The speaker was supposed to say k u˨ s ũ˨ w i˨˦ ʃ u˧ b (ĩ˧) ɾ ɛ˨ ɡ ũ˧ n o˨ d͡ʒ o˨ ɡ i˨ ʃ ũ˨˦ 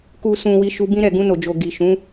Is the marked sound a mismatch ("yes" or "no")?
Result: no